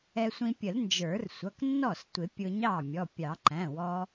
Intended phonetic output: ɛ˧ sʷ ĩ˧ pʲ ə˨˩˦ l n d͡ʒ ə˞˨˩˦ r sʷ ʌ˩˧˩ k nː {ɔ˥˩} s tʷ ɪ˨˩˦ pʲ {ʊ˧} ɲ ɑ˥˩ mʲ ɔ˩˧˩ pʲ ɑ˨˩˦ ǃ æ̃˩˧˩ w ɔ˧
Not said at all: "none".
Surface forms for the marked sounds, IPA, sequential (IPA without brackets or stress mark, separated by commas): ɔ˥˩, ʊ˧